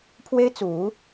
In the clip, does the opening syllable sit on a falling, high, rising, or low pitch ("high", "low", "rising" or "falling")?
high